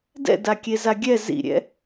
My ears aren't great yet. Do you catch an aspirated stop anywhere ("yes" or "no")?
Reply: no